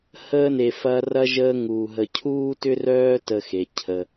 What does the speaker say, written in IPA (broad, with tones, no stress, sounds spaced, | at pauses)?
h əː˦ n e˨ f ɐː˦ r ɐ˥ ʒ əː˦ ŋ uː˨ ɦ ə˨ cʰ uː˥ t ʏ˥ r œː˦ t ə˨ x e˩ cʰ ə˩